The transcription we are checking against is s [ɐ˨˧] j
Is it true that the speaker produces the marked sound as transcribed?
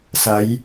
yes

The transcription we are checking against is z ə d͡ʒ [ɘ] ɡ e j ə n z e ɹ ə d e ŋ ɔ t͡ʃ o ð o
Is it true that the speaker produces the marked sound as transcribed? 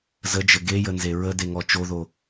yes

